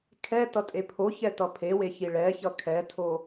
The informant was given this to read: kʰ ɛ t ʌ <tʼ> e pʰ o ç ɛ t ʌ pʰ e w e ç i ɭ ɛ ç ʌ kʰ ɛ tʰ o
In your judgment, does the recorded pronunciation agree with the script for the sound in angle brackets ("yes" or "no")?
yes